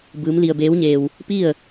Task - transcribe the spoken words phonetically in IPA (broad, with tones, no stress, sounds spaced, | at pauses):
b ɯː˧˥ m l i˧ ə̯ b eː˧˥ w ɲ eː˧ w | p i˥˨ ə̯